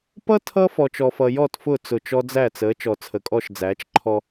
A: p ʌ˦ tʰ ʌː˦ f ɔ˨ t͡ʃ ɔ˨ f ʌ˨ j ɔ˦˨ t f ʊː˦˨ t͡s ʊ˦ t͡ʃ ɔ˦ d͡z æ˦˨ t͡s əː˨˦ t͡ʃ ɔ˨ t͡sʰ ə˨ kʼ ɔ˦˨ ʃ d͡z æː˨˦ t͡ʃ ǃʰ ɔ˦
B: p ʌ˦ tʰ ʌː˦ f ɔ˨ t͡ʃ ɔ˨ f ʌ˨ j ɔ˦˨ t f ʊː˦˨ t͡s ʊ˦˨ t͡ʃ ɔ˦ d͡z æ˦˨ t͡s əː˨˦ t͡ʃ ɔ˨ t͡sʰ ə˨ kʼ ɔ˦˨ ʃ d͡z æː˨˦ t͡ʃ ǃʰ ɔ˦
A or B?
B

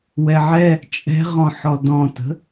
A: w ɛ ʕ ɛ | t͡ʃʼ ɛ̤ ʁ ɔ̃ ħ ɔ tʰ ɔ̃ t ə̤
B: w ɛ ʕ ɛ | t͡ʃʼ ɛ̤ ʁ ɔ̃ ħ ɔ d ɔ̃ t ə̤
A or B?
B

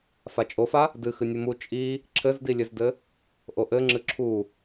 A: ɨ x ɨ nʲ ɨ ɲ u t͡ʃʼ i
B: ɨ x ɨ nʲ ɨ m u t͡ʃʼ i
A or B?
B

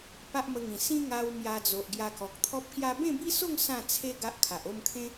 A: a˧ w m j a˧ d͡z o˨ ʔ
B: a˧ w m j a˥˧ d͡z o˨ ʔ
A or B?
A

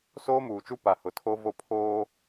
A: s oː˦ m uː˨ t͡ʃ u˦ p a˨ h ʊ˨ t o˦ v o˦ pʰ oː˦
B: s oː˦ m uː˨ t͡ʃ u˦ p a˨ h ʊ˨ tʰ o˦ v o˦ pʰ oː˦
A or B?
B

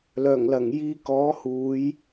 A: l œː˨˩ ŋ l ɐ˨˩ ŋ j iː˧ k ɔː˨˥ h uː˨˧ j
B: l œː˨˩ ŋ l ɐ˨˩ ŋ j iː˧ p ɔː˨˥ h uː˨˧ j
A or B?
A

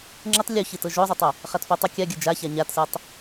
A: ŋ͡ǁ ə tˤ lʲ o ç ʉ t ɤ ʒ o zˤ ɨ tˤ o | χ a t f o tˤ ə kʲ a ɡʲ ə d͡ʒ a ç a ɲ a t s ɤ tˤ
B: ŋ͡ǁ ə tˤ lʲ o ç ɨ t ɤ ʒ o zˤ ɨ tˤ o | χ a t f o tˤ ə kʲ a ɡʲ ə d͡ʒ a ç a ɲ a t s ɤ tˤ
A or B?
B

